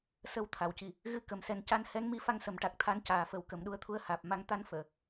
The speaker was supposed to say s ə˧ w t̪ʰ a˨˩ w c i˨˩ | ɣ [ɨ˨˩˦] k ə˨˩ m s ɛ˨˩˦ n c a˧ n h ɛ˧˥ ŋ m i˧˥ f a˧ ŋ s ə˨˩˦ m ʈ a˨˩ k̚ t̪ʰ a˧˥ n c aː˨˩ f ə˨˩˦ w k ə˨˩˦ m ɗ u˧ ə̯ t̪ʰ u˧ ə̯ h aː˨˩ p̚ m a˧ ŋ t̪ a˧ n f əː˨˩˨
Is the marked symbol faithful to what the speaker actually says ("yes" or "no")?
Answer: no